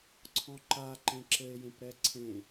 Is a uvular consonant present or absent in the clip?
absent